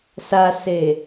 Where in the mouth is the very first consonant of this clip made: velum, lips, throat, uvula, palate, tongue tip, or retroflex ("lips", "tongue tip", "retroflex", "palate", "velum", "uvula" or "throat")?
tongue tip